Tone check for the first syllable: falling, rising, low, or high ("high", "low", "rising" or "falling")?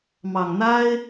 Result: low